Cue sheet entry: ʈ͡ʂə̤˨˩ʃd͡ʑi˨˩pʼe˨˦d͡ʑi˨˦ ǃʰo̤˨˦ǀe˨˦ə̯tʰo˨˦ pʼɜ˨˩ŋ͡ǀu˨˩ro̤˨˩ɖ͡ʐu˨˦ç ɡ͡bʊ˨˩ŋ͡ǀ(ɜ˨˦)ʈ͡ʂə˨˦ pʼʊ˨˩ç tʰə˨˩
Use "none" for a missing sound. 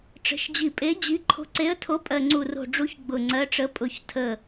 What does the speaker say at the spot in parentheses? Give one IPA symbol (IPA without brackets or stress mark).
ɜ˨˦